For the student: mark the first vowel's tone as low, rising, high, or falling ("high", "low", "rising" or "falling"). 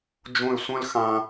falling